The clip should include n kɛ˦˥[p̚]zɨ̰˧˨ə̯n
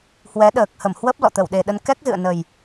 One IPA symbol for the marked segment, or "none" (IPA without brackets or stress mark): k̚